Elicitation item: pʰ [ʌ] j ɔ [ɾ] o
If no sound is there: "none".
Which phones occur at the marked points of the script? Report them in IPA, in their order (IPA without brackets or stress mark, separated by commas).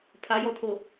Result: a, tʰ